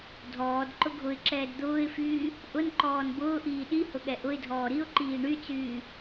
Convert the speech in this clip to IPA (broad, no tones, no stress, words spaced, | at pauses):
dʱɔːd ǃʊɡʱʊɪ̯ǁɛːd d̪ʊːɪ̯fyː | ʔʊnǃɔːn bʊːʔiː ɗihʊ ɠɛʔʊɪ̯dʱɔː ɾiʊ̯ǃiː ɳyt͡syː